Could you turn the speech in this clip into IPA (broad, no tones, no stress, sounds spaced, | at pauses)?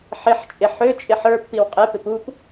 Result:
ħ ɪ ħ t͡ʃʼ ɪ ħ ø t͡ʃʼ ɪ ħ ə˞ pː i w qʼ e p ɪ p u p